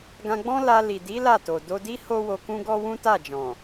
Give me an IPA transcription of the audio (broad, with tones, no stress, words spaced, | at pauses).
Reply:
ɡã˧ɡ͡bɔ̃˦ la˧ li˨di˨˦ la˦˨ to˨ do˧di˦ ho˦wo˧kũ˦ ɡɔ˦wũ˦ta˦˨d͡ʒɔ̃˨